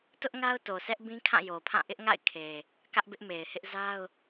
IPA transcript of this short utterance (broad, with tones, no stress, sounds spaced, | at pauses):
t ʊ˦ ʔ ŋ a˦ ʊ̯ t o˨ sʰ ɛ˦ ʔ b ĩ˦ kʰ ã˦˨ j o˨ pʰ ã˦˨ ʔ ɪ˦ ʔ ŋ a̰˦˨ ɪ̯ kʰ e˨ | k ä˦ ʔ b ɪ˦ ʔ m e˨ ɪ̯ h ɪ˦ ʔ z a˦ ʊ̯